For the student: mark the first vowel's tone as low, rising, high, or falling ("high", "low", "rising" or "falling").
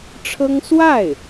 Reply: high